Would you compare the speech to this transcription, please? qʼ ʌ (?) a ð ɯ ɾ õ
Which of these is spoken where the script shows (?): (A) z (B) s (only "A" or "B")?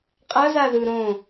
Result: A